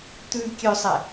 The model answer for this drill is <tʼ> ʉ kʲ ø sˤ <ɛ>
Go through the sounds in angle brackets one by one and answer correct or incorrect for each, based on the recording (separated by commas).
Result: incorrect, correct